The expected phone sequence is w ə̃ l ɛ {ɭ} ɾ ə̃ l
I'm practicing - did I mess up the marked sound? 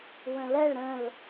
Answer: no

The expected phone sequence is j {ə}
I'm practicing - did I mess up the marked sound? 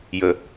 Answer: no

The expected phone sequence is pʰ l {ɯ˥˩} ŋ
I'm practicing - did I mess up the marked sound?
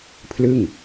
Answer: no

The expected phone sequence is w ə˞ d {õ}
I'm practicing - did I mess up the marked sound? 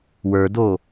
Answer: yes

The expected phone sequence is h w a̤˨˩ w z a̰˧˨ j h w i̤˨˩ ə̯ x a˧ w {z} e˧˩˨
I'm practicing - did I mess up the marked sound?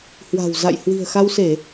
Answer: yes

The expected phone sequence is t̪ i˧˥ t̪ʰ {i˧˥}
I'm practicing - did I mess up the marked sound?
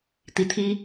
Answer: yes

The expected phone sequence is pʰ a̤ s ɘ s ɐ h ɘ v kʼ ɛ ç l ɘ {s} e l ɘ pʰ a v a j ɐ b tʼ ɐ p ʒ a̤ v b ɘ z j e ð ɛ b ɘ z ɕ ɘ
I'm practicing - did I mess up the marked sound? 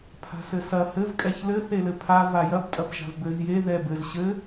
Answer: yes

